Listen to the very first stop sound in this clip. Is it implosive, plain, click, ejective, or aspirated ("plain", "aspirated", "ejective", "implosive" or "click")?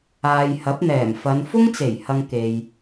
plain